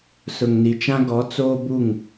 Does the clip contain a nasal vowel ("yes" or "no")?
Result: yes